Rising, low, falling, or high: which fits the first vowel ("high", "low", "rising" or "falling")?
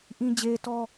low